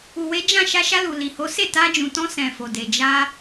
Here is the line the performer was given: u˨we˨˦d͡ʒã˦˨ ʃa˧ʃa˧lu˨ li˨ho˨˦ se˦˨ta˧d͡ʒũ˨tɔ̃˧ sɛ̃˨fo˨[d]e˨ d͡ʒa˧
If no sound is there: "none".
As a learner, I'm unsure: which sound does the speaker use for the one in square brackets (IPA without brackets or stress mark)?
d